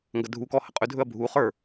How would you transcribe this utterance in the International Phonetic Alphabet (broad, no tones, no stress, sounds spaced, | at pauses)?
ŋ ɡ ɐ dʱ u k ɔ h ə qʼ ɵ dʱ ɵ ɐ̯ bʱ u χ ə˞